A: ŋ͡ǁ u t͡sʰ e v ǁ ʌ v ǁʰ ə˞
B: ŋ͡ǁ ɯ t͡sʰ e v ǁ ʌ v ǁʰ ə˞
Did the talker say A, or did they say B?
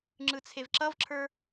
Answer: B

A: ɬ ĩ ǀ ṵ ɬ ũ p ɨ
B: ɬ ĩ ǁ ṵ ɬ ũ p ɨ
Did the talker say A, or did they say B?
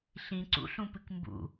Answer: A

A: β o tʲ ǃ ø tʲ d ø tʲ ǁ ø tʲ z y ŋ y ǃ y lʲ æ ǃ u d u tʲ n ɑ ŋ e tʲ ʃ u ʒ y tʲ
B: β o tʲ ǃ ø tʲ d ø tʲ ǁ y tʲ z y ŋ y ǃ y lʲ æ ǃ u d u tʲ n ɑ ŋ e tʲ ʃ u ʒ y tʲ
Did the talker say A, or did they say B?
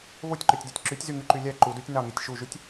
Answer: B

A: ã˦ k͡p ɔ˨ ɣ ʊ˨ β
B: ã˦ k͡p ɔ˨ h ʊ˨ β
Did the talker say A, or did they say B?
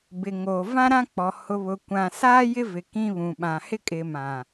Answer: B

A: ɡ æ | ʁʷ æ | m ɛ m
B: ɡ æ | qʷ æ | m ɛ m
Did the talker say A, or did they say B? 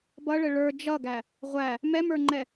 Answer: A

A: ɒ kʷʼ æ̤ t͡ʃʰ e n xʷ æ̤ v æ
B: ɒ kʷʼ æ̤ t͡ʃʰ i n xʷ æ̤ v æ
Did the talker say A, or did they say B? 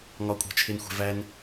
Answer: A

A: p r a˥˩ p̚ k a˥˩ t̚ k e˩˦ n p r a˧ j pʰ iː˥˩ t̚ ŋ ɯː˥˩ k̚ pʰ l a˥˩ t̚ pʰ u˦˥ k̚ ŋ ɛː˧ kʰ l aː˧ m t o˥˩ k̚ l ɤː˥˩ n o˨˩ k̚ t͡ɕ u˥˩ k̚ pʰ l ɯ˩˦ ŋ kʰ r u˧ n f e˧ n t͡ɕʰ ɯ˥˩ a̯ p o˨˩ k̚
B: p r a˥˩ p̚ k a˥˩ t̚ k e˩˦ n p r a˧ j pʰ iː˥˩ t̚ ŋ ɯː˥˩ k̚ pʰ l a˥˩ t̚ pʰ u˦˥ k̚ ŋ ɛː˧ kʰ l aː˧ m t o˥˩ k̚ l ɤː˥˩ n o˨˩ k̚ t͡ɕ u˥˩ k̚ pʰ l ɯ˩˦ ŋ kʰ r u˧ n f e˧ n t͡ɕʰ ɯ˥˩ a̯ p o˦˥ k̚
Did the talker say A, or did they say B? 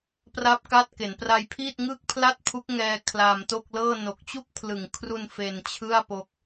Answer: B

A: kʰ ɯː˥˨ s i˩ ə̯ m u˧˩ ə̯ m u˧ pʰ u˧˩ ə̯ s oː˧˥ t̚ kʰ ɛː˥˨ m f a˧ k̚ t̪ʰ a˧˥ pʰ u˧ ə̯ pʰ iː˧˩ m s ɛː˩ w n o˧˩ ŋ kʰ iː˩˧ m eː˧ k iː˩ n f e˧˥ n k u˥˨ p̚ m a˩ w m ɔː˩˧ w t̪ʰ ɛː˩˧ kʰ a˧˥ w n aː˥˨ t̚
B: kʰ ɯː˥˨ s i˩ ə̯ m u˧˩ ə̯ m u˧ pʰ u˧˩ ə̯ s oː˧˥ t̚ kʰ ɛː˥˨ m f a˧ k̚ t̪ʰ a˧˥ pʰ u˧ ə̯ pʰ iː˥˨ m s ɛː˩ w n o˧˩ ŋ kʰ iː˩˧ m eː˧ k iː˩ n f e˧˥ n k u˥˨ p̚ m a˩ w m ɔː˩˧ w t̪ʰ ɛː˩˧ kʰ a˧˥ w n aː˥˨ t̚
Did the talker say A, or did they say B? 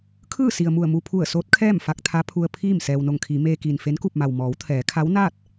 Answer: B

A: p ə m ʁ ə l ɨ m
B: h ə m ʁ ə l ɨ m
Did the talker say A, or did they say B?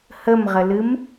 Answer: B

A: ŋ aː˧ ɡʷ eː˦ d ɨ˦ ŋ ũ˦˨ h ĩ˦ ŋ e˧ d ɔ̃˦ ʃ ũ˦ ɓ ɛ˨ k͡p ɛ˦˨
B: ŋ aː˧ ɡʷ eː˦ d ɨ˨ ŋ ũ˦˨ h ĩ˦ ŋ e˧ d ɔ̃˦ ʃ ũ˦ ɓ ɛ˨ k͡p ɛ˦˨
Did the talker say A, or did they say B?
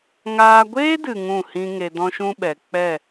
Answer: B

